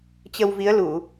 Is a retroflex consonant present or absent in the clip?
absent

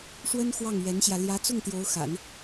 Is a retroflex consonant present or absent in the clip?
present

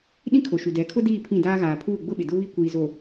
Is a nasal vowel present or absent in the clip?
present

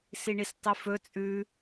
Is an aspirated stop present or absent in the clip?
absent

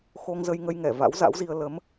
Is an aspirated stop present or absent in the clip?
absent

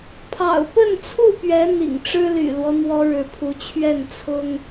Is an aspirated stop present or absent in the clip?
present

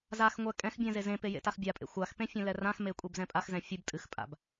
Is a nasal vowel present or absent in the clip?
present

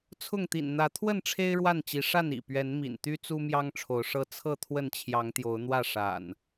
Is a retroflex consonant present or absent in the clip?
present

